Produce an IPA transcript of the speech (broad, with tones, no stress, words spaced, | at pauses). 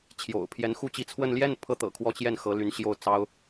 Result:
t͡ɕʰjo̰˨˩ʊ̯pʰjɛ˧˥nxu˥ t͡ɕi˧˥t͡sʰwə˥˧n ljɛ˥˩npʰɤ˧˥ t̪ɤ̰˨˩kʰwɔ˥˧ t͡ɕjɛ˥˩nxɤ˧˥ ly˧˥nɕjo˥˩ʊ̯t͡sɑ˥ʊ̯